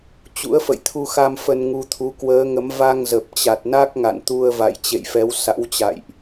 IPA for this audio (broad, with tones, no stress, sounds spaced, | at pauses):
t͡ɕ ṵ˧˥ ə̯ f ə̰˧˨ j t̪ʰ u˧ x a˧ m f ə˧ n ŋ u˧ t̪ʰ u˨˦ k w əː˨˦ ŋ ə˨˦ m v a˧ ŋ z ə˨˩ p̚ t͡ɕ a˨˩ t̚ n a˦˥ k̚ ŋ a̰˧˨ n t̪ u˧ ə̯ v a̰˧˨ j t͡ɕ ḛ˧˨ j f ɛ˨˦ w s a̰˧˥ w t͡ɕ a̰˧˨ j ʔ